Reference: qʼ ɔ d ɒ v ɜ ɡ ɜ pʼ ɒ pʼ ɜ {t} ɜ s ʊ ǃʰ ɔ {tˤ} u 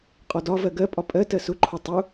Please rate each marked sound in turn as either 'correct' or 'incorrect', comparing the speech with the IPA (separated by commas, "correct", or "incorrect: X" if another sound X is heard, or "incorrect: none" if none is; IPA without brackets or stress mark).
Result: correct, correct